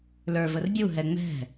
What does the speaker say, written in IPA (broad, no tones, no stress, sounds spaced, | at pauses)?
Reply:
l ə˞ v ə r bʲ u ɦ ɛ ŋ͡m ɛ̤